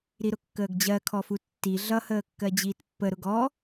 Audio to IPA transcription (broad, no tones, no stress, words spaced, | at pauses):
ɾiɾʊkːəːɡd͡ʑɜ kʰɔfutːi ɮʌ həːkːɜd͡ʑiːtpːə ɾʊɡɔ